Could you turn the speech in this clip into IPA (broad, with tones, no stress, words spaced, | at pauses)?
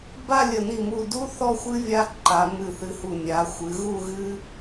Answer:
ba˥˧lʲə˧˩ni˧˩mu˧˩ du˥ θɔ˥˧xʷɨ˥ vʲa˥ǃa˩˧ mɨ˧˩θɨ˧hu˧˩ nʲa˩˧ xʷɨ˩˧ɣu˥˧ɣɨ˥